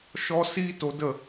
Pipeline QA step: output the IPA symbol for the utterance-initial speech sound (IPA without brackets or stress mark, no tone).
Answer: ʃ